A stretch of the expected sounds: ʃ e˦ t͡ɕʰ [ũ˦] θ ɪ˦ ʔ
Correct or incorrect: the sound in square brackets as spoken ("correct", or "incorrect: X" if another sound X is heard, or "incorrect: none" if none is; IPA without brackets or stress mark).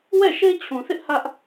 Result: incorrect: ũ˨